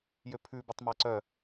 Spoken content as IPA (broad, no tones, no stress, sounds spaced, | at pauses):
j ø pʰ ʉ b ɛ tˤ m æ ǀ œ